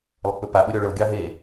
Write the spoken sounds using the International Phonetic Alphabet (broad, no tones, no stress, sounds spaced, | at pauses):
lˠ ə k͡p ɵ p a ɓ ɵ ɾʲ ɔ ɭ ɤ ɡʲ ɑ ɦ e